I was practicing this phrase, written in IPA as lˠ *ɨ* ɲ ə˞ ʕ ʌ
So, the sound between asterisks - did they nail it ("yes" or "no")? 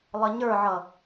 no